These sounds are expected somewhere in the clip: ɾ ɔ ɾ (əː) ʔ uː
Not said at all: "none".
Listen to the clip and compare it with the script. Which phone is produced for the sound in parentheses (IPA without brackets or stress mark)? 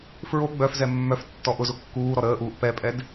əː